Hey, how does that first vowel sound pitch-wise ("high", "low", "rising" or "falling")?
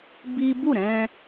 high